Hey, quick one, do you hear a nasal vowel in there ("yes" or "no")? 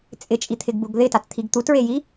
no